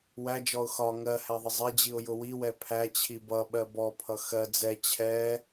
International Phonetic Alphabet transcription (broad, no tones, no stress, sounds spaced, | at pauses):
w æ d͡ʒ ɔ ʊ̯ x ɒ ŋ ɜ h æ ðˤ ɪ zˤ ɛ d͡ʑ i ʊ̯ j ʊ w i w ɛ pʰ æ t͡ɕʰ i b ʌ ɓ ɜ b ɔ pʰ ʌ x ɜ d͡z ɛ t͡ɕʰ ɛ